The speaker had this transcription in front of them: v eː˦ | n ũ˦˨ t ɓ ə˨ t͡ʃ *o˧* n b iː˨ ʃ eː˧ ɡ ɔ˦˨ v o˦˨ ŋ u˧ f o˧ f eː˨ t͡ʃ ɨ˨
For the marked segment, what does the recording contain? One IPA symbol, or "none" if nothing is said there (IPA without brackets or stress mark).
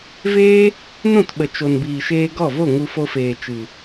o˨